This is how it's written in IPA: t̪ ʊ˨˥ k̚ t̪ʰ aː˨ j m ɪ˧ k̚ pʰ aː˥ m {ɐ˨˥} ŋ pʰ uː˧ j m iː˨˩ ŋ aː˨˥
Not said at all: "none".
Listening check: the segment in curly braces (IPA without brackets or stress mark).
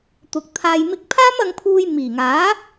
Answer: ɐ˧